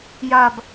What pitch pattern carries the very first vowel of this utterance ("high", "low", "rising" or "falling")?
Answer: low